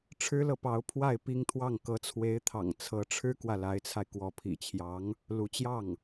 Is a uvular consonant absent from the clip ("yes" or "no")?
yes